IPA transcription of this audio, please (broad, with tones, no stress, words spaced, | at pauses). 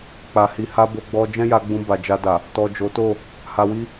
k͡pa˨hi˨ha˧ bo˧ɡ͡bɔ˧ d͡ʒɛ̃˦ja˧ɡ͡bũ˧ ba˨d͡ʒa˧da˨ | tɔ˨ d͡ʒo˨˦to˦˨ | ha˧wi˦